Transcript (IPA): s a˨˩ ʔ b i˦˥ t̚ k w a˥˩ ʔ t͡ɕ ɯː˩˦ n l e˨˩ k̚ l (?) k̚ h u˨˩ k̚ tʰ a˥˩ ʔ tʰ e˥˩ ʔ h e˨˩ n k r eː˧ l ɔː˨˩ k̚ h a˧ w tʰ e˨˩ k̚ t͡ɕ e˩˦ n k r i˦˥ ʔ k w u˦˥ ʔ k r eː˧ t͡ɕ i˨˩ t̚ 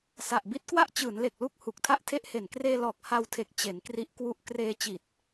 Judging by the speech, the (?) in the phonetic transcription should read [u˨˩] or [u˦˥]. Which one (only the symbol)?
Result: u˦˥